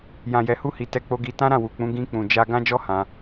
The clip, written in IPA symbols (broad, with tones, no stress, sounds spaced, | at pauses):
j ã˨ j ɛ˨ h u˧ h i˨ t ɛ˧ k͡p o˧ ɡ i˧ t ã˦ ɾ ã˦˨ w u˨ k͡p ũ˨˦ ɡ ĩ˧ k͡p ũ˨ d͡ʒ a˧ ɡ ã˦ d͡ʒ ɔ˦ h ã˧